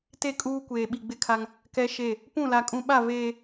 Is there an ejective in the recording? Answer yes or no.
yes